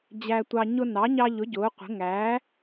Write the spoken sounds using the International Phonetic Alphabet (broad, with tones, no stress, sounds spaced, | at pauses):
d͡ʑ æ˦ tʷ ɑ˦ ɲ ʊ˦ n ɑ˨˥ ɲ ɑ˦ ʎ ʊ˨˥ ɟ ʊː˨˥ qʷ ə̤˨˥ ŋ æː˨˥